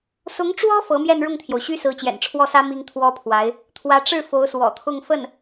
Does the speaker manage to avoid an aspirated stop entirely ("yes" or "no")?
no